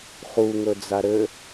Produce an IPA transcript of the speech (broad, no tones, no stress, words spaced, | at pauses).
χuŋɵ d͡zaɾɘ